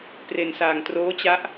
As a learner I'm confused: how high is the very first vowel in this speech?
mid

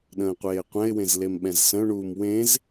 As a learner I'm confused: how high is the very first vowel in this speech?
mid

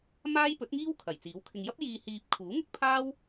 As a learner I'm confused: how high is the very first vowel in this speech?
low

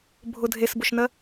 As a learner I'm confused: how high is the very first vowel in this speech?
high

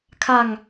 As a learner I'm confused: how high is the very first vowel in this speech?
low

